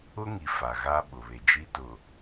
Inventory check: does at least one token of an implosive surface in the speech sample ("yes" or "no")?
yes